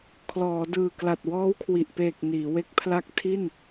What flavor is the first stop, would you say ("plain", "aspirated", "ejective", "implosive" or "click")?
aspirated